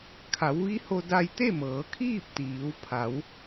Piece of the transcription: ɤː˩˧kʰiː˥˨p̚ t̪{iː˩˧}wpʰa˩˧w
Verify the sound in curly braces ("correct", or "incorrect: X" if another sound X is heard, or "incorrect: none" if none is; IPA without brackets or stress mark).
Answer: correct